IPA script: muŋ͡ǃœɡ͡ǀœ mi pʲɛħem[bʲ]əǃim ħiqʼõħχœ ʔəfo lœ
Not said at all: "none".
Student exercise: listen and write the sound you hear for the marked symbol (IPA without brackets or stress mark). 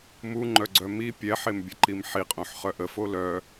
bʲ